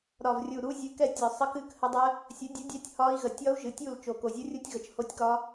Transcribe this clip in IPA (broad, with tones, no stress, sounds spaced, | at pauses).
ɾ ɒ˨˩ v rʲ u˨˩ ɾ u˦˥ zʲ ɨ˨˥ k ɛ˥˨ tʲ ɒ˨˩ sˤ ə˦˥ k ɨ˥˨ k h ə˦˥ dˤ ə˦˥ | sʲ ə˨˥ dʲ u˨˥ dʲ ɛ˦˥ tʲ h ɒ˦˥ i̯ ɣ ə˨˩ tʲ ɒ˦˥ u̯ ʒ ɨ˨˥ tʲ u˥˨ l t͡ʃ o˨˩ k o˨˩ zʲ u˦˥ rʲ u˦˥ tʲ ɣ ə˨˩ t͡ʃ h o˦˥ tʲ k ɒ˦˥